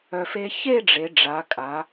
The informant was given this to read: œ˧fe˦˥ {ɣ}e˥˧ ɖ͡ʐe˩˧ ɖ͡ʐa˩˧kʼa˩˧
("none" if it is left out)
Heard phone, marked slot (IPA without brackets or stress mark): ç